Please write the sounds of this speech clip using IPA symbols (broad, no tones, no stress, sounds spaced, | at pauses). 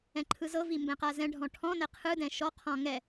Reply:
ɛ̃ ǃʰ ɯ z ɤ v i m b ɛ̃ q a z ɛ̃ ɖʱ ɔ̃ ʈʰ ɔ̃ n ɛ qʰ ɯ d ɛ̃ ʃ ɔ qʰ ɔ̃ ŋ ɛ